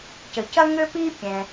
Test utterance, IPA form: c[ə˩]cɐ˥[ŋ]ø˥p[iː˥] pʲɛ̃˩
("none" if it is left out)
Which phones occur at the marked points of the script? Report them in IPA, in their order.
ə˩, ŋ, iː˥

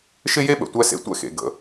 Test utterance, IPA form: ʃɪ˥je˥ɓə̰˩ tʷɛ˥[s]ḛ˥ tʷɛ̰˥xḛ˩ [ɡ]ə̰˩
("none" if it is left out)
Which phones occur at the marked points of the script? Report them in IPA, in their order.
s, ɡ

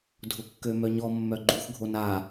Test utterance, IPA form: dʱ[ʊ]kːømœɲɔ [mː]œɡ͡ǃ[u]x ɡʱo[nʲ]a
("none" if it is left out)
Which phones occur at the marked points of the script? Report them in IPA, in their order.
ʊ, mː, u, n

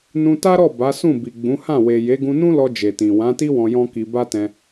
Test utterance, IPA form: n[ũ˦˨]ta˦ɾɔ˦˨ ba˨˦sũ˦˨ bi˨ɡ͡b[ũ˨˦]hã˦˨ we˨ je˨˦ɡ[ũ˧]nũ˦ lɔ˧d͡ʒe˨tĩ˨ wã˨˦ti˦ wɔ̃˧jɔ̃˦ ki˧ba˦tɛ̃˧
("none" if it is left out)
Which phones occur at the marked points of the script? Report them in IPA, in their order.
ũ˧, ũ˨˦, ũ˧

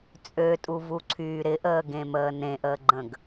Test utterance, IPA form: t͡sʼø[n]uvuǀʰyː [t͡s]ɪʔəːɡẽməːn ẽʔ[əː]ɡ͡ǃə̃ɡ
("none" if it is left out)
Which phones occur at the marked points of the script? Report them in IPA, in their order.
tʼ, ɾ, əː

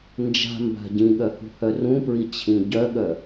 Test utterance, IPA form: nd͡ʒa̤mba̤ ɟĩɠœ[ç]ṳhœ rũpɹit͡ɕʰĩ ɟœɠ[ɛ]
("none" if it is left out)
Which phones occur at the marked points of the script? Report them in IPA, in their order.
h, œ

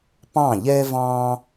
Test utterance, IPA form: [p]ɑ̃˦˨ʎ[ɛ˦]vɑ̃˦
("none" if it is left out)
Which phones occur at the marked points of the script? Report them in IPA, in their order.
p, ɛ˦

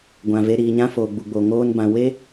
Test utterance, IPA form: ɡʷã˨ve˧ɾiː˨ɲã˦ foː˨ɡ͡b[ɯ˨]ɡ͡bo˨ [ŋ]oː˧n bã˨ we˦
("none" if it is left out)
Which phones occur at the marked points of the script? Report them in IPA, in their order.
u˨, ŋ

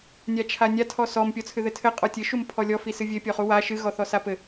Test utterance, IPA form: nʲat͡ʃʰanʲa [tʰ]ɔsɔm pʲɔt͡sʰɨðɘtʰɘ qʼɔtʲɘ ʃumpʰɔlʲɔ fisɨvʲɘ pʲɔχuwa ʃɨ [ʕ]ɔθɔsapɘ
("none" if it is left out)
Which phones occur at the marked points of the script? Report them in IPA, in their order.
tʰ, ɣ

